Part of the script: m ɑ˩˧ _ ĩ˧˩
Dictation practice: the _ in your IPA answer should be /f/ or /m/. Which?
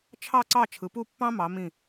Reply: m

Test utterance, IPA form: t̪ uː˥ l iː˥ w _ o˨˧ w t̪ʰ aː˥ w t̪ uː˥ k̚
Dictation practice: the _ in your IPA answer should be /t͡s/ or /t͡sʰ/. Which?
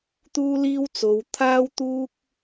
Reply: t͡s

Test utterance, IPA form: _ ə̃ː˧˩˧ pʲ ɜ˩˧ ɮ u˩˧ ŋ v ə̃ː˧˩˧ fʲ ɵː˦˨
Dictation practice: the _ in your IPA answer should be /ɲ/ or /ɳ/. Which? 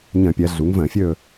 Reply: ɲ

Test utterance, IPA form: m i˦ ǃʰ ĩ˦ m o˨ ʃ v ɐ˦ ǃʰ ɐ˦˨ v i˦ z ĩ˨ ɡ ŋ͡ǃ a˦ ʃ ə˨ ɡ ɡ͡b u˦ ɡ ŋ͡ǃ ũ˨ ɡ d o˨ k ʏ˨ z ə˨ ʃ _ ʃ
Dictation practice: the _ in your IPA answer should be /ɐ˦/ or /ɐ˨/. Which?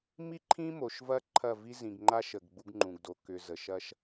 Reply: ɐ˦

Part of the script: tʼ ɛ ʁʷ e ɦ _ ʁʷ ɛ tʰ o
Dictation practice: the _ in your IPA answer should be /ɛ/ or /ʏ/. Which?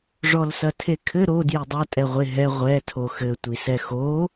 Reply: ɛ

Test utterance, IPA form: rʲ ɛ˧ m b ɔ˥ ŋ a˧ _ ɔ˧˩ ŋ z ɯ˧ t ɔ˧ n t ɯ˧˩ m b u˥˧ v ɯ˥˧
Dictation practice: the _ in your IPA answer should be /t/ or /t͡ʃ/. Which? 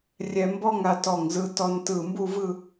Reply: t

